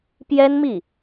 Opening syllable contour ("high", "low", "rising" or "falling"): high